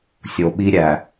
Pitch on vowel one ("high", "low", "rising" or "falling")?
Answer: low